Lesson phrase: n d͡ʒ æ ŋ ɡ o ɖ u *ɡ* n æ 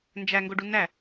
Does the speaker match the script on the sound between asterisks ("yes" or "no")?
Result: no